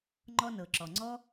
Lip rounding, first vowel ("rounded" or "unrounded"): rounded